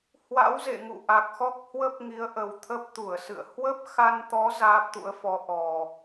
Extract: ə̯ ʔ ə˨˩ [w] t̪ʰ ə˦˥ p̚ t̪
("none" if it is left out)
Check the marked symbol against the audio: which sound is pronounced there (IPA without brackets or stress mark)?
w